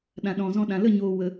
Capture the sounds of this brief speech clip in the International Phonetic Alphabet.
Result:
ɗ ã˨ ɗ ɔ̃˨ z ɔ̃˧ ɗ ã˨ l ə˦˨ ɲ oː˨ w ə˨

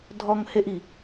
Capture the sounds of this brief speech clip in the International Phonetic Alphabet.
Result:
dʱ ɔ ŋ h e ʔ i

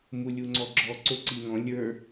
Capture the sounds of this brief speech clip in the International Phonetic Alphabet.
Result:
m u lʲ u ŋ͡ǀ ɔ ɡ͡ǁ ɔ ǀ o ǀ i ŋ ɔ̃ lʲ ə˞

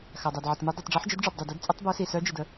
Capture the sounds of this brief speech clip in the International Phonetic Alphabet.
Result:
x a˩ dˤ a˩ d ʕ ə˩ t m y˨˦ dˤ y˩ tˤ ɖ͡ʐ œ˨˦ ħ d͡ʒ i˨˦ d ɖ͡ʐ œ˩ b dˤ y˩ d ɛ˨˦ d t͡sʼ ə˨˦ tˤ b œ˨˦ s i˩ s œ˨˦ d͡ʒ i˩ d ə˩

